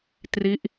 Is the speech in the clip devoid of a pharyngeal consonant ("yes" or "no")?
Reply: yes